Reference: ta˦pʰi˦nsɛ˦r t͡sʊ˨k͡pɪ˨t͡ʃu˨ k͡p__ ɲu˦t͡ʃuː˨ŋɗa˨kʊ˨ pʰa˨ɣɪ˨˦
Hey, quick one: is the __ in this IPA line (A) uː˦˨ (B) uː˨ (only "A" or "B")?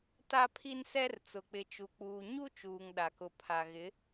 B